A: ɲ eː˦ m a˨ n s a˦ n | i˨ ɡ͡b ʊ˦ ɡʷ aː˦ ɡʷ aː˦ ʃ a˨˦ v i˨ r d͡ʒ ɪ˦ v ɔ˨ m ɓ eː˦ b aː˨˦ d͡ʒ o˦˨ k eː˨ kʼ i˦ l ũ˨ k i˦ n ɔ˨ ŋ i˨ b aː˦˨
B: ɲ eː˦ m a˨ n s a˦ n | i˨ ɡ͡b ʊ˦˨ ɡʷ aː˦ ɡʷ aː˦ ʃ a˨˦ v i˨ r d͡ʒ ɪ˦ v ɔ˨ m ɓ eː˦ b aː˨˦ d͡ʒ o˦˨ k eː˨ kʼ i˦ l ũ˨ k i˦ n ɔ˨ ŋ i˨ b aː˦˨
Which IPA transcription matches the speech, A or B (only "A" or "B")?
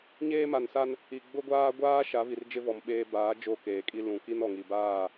A